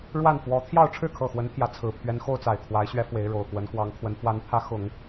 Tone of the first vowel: falling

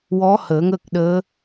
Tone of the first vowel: rising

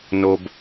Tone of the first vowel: low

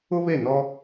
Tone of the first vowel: high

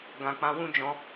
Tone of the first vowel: low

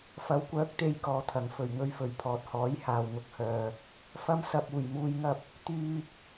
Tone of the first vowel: rising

